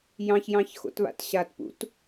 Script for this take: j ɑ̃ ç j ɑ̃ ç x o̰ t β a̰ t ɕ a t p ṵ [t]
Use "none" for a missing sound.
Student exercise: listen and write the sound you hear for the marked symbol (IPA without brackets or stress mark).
t